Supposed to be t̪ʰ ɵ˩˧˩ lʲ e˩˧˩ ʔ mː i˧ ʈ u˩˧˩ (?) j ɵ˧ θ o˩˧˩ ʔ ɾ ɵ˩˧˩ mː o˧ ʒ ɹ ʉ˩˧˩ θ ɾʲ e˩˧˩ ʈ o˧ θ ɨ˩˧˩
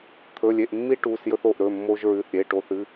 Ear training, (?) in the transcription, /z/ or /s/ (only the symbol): s